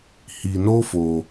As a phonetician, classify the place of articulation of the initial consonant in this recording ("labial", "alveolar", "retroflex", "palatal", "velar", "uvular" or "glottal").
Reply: glottal